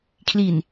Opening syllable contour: low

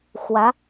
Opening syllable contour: rising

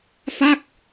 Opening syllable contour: falling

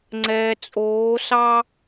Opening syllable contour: low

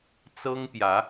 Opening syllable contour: high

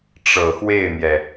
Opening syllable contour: low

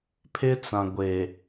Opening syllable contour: high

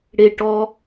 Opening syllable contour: low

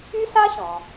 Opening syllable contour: high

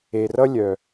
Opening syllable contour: low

